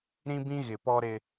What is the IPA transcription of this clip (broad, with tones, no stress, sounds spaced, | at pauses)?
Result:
ɾ ĩ˦ b ĩ˦ ɣ ɪ˨ p ɔ˦ ɾ ɪ˦